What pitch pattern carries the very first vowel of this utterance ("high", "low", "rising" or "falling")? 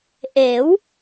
rising